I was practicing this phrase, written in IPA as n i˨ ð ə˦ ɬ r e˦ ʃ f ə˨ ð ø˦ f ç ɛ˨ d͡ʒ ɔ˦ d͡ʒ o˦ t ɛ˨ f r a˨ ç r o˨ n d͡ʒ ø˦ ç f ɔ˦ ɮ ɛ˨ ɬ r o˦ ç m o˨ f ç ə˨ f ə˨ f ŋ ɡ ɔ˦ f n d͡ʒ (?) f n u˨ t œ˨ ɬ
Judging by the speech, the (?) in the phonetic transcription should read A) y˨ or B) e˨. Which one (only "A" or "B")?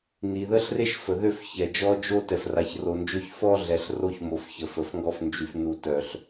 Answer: A